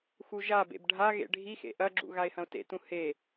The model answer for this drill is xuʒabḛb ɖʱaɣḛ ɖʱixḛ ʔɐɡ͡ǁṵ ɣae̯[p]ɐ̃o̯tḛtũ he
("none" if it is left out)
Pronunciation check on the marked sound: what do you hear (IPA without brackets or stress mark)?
h